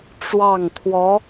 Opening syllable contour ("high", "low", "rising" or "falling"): falling